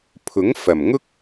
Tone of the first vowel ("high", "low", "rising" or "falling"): rising